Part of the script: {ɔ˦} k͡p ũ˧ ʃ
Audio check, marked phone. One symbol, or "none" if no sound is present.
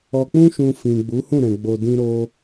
ɔ˨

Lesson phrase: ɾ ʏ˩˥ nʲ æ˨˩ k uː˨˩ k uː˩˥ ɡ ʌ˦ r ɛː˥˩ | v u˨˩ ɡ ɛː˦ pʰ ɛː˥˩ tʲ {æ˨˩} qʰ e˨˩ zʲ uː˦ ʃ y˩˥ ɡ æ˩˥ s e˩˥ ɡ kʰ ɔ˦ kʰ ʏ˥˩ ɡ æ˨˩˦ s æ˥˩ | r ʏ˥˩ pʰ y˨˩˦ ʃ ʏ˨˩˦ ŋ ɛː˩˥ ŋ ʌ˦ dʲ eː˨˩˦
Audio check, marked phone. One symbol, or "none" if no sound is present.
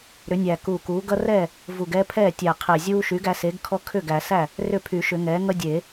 æ˨˩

